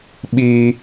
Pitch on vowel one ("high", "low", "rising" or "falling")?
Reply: high